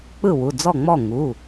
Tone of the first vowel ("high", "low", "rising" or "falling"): falling